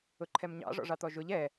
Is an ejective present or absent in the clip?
absent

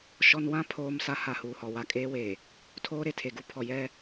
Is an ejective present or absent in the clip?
present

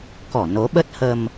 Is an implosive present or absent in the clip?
present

